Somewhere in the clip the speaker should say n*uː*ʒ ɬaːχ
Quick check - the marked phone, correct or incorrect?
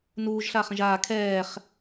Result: correct